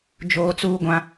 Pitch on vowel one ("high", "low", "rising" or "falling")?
high